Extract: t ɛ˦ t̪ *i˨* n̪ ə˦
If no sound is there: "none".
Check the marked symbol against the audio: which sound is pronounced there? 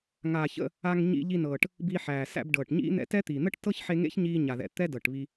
i˨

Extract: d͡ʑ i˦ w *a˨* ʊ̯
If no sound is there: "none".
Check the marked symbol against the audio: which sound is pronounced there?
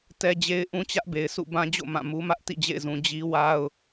a˦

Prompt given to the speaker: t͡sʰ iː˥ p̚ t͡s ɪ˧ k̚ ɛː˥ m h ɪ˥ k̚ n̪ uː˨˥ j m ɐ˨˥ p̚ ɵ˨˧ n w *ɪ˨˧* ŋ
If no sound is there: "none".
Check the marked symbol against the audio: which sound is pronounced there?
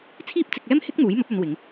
ɪ˨˧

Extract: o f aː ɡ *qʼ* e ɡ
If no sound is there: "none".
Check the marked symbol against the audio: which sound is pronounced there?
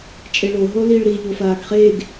χ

